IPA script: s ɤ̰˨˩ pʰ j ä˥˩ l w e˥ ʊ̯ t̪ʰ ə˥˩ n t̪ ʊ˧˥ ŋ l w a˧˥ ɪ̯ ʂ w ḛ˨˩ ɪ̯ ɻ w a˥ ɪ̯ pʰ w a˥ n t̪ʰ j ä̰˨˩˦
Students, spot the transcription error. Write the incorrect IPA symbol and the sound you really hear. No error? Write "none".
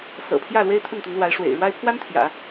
ʊ̯ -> ɪ̯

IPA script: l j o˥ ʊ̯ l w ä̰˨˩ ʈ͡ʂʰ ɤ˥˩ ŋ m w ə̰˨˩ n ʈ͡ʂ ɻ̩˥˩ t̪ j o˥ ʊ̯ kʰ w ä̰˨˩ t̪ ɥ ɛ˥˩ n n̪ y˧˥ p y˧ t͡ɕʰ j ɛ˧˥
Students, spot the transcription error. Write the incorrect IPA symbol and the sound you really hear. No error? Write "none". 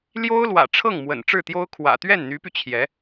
none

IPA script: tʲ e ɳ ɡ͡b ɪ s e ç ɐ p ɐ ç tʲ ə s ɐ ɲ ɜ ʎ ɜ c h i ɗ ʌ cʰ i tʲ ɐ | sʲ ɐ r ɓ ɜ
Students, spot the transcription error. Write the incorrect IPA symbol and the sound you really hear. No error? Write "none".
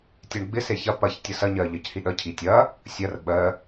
none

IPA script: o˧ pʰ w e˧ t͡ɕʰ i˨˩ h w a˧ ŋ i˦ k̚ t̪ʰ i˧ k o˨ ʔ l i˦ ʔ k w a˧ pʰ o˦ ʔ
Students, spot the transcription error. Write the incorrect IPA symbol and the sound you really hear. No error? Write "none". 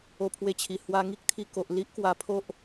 none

